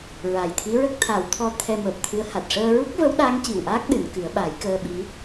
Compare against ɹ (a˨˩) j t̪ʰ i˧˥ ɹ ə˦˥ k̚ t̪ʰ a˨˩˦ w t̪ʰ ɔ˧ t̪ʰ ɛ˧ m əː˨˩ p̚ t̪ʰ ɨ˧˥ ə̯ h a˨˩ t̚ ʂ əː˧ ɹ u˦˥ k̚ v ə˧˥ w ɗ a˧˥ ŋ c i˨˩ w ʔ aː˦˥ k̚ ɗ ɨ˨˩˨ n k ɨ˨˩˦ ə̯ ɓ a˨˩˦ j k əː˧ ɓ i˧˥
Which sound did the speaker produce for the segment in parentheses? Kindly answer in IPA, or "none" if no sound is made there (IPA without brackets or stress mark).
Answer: a˨˩